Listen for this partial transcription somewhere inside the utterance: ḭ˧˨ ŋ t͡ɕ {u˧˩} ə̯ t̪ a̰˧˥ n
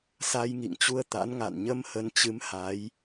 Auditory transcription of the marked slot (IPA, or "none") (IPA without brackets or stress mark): u˧